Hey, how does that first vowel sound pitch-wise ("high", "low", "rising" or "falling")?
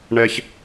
high